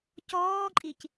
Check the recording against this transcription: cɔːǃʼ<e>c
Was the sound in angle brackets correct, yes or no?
no